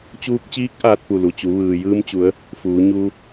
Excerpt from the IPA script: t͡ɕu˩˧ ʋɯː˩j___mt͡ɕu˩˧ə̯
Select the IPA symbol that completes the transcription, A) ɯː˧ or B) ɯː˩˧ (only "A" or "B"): A